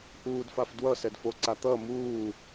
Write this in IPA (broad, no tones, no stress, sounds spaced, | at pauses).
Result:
ʔ uː d f a f d w ʌ s ɛ d f o ǀ a t̪ ʌ m uː